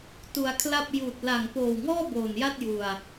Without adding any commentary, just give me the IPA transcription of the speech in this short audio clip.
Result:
t u˧ a̯ kʰ l a˥˩ p̚ j uː˨˩ t̚ l a˨˩ ŋ p oː˨˩ w ŋ ɔː˥˩ b oː˨˩ n j a˥˩ t̚ j u˧ a̯

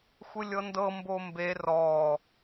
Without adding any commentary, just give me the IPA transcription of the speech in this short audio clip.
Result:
xʷ ɯ lʲ ɤ n d ɤ m b o m b e r ɔ

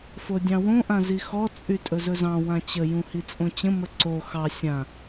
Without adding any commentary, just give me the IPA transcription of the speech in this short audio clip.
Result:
f o dʲ ɑ̃ w õ ʔ ã z i x ɔ t͡sʼ y tʼ ɵ z ɵ z ɑ̃ w ã t͡ɕ ə j ũ h i t͡sʼ õ t͡ɕ ə̃ m ə ǀ o x ɑ sʲ ã

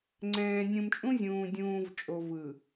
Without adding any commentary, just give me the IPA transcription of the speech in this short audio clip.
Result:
ŋ͡ǀ ɛ̃ː˨ nʲ ũ˨ m t͡ʃʼ ũ˦ zʲ ũː˨ dʲ ũː˨ v t͡ʃʼ o˨ v ɯ˨

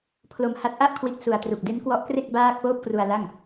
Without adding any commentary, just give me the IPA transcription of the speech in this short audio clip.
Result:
pʰ l o˧ m h a˦˥ t̚ ʔ a˥˩ ʔ kʰ w i˦˥ t̚ s u˨˩ a̯ t r u˨˩ k̚ d e˦˥ n k w ɔ˦˥ ʔ k r e˥˩ k̚ b aː˥˩ k̚ p oː˥˩ p̚ k r u˧ a̯ l a˥˩ ŋ

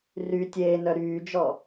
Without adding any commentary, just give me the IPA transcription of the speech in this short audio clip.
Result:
r y tʲ eː n œ ɾ yː d͡ʒ ɔ

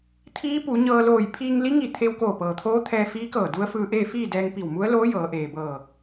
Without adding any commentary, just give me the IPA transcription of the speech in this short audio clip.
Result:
t̪ʰ iː˧˥ p u˩˧ ɲ ɤː˧ l oː˧˩ j pʰ iː˧ ŋ l i˧˥ ŋ i˧˩ t̪ʰ e˧ w k oː˧˩ p ɤː˩ t̪ʰ oː˧˥ t̪ʰ ɛː˧ f iː˧˥ k ɤː˧˩ d u˧˥ ə̯ f ɯː˧ ʔ eː˥˨ f iː˥˨ d ɛː˧ ŋ p i˧˩ w m u˧˥ ə̯ l oː˧˥ j ɤː˩˧ ʔ eː˩ b ɤː˧˩

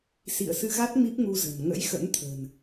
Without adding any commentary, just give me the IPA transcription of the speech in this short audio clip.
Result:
s ḭ˧˨ ə̯ s ɨ˧ ɣ a˦˥ t̚ m i˦˥ p̚ ŋ u˧ z ə̤˨˩ n ŋ ə̰˧˥ j x ə̰˧˥ n t̪ʰ ə̤˨˩ n

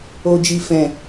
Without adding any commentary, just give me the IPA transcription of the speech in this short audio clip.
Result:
o˨ d͡ʒ i˨ f ɛ̃˨

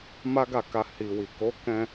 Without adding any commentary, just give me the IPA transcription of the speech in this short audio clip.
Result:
m a˦ ɡ a˦˨ k a˧ h i˨ w i˨ k o˨˦ k ɛ̃˧

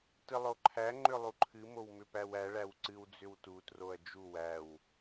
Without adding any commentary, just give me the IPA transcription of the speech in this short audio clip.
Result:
t ɨ lˠ o ǃʰ æ ŋ͡ǃ ʏ lˠ u ǃʰ ɨ m o w m ʏ p æ w æ ɭ æ w ǀ ɨ w d͡z ʏ w t u t r o ɐ̯ d͡ʒ u w æ w

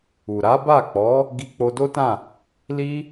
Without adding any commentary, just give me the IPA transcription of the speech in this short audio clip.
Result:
u˨ ɾ a˨˦ b a˦˨ k͡p ɔ˨˦ | ɡ i˧ k͡p o˧ d o˦ t ã˦˨ | l i˦

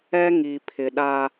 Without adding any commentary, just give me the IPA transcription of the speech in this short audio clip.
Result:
ɛ˦ ŋ i˨ pʰ ɪ˨ ɗ a˦

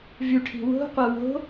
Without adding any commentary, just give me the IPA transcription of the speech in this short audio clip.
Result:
v y ʈʰ i̤ w o̤ qʷ ɛ w o̤

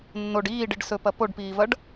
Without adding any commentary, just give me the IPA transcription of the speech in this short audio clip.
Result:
nː o ɖ iː ɖ i ɖ s ɵ p ɐ p o ɖ p iː v ɐ ɖ

